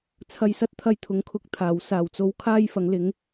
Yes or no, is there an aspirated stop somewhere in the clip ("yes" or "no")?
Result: yes